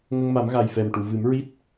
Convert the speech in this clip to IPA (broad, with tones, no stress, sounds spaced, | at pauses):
ŋ ə˧ ŋ m a˨˩˦ m ɣ a˨˩ j f ɛ˨˩ m ʈ u˨˩˨ v ɨ˨˩˦ m ɹ i˦˥ t̚